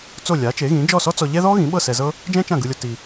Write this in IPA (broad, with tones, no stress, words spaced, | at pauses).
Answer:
t͡so˥˩ lʲa˩˥t͡ʃe˩˥ɣĩ˩˥ d͡ʒɔ˥˩sɔ˥t͡sɔ˧ ʎɛ˥ ðɔ˥ɣĩ˩˥ɓɤ˥˩ sɛ˧zɤ˥ | d͡ʒɛ̃˥t͡ʃã˥˩ɡɯ˧lʲo˧ ti˧